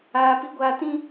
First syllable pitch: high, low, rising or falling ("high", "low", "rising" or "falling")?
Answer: high